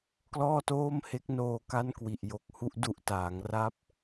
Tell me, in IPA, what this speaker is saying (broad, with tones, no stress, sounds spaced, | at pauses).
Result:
k l ɔː˥˩ t oː˥˩ m h e˦˥ k̚ n oː˧ k a˥˩ n k w i˨˩ ʔ j o˨˩ k̚ h u˥˩ ʔ d u˨˩ ʔ t aː˩˦ ŋ r a˦˥ p̚